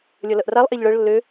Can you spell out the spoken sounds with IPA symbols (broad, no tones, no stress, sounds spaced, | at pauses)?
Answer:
lʲ ʌ l ʌ ʔ r a lˠ ʔ e ʎ ɭ ɤ ɭ lː ø